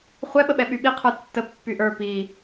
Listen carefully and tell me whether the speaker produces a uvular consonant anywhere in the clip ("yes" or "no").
yes